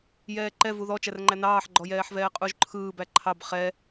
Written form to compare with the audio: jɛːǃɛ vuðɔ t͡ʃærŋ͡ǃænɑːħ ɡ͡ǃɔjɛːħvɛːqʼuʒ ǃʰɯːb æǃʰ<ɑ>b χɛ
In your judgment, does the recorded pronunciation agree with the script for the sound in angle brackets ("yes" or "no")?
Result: yes